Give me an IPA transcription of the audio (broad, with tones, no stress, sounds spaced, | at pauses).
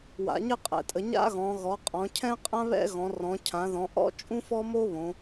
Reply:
w a̰˩˧ ɲ ɘ˥ qʼ ɛ̰˩˧ tʼ ə˩˧ ɲ a̰˥ ɣ ɔ̃˩˧ ɣ ɔ˩˧ qʼ ɔ̃˩˧ cʰ ɛ̃˥ qʼ ã˥ β ɛ̰˥ ɣ ɔ̃˩˧ r ɔ̃˩˧ cʰ ã˩˧ ð ɔ̃˩˧ ʔ ɔ̰˥ t͡ʃʼ ũ˥ f ɔ˥ m o˥ β õ˩˧